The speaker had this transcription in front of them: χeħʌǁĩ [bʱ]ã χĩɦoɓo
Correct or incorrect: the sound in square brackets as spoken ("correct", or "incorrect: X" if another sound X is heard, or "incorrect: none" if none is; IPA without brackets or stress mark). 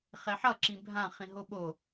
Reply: correct